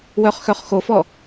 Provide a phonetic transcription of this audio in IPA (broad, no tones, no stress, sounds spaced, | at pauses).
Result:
w œ χ x œ χ x o f ɔ